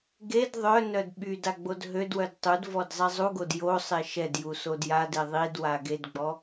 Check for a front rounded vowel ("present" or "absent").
present